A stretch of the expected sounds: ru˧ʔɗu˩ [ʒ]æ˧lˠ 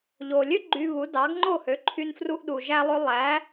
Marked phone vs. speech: correct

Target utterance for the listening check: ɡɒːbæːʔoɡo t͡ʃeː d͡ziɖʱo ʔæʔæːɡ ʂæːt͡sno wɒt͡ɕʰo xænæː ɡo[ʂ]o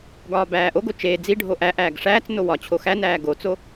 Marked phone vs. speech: incorrect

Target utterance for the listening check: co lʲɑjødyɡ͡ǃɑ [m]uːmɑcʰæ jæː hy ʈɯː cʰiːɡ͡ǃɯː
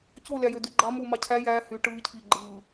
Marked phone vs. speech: correct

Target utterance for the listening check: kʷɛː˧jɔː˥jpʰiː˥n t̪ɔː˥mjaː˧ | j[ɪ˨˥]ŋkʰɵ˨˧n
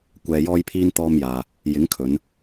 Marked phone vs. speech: correct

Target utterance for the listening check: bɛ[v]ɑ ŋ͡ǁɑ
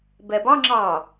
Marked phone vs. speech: incorrect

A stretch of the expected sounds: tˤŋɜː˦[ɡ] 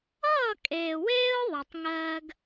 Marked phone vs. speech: correct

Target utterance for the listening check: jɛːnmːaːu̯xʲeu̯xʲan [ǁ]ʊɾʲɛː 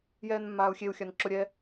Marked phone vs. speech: correct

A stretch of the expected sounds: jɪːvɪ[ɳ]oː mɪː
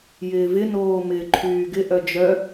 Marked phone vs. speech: incorrect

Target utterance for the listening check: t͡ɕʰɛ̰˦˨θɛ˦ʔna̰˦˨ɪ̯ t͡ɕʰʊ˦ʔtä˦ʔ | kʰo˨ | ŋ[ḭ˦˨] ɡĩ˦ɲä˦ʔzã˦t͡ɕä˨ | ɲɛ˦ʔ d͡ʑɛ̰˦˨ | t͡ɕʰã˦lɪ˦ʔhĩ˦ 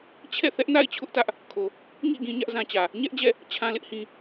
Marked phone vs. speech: correct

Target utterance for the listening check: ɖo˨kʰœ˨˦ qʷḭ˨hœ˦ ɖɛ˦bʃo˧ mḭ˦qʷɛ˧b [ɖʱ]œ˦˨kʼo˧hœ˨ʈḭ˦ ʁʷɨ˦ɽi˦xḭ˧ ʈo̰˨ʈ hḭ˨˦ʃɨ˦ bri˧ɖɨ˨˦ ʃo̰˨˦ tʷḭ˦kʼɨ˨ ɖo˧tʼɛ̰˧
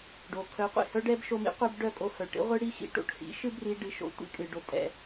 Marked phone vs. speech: incorrect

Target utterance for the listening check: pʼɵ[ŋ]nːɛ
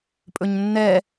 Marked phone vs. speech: incorrect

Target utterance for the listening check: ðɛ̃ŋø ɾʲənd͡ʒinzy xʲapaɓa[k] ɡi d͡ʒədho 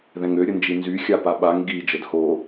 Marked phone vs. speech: incorrect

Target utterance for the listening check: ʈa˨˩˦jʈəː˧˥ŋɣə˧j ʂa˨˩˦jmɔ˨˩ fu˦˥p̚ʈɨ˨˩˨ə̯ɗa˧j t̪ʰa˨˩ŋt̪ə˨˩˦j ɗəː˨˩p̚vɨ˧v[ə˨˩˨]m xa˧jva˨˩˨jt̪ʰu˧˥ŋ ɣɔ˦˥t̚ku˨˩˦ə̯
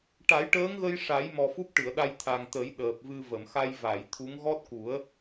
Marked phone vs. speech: correct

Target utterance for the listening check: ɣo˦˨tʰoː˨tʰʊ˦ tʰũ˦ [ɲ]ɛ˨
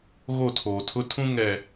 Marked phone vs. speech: incorrect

